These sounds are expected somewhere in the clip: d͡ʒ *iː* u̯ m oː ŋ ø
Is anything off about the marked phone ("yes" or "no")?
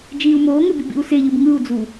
no